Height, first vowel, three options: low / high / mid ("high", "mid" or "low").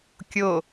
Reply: mid